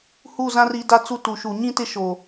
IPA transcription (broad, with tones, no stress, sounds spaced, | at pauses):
h u˦˨ z ã˦ r i˨˦ d a˦ t͡s u˦ t u˨ ʃ u˨ ɲ ĩ˦ t ɪ˦ ʃ o˨